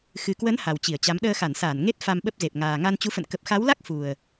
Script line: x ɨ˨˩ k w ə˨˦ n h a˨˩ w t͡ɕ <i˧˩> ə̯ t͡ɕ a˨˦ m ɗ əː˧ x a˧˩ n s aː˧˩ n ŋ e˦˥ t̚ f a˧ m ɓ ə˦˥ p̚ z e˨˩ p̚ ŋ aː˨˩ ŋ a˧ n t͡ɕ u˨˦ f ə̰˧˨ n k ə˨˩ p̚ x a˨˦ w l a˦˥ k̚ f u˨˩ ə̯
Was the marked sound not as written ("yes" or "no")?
no